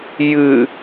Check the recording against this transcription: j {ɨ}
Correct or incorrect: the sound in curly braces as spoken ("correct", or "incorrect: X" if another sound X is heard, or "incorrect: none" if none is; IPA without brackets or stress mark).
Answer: correct